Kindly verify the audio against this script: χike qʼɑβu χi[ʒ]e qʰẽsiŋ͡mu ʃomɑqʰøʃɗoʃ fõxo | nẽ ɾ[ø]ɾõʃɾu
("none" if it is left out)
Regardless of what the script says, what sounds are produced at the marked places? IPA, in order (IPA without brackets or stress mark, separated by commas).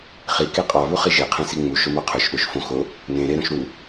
ʒ, e